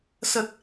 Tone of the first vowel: low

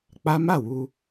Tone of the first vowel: high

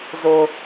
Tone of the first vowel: low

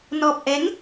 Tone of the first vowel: low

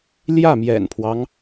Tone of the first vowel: falling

